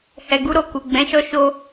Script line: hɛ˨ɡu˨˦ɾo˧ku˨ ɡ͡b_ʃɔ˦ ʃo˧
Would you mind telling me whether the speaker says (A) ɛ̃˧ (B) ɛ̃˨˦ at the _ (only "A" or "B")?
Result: B